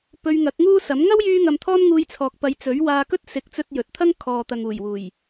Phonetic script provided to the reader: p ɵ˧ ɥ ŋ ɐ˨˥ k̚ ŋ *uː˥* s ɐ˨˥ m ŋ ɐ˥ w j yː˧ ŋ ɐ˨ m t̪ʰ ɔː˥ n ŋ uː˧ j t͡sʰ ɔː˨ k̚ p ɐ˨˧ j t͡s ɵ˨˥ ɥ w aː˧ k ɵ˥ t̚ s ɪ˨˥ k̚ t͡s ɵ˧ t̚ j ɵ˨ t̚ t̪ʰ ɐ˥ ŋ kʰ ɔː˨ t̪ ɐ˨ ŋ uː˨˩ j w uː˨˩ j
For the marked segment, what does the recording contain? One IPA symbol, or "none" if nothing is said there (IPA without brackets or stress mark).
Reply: uː˥